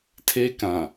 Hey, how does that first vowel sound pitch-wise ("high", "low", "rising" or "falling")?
high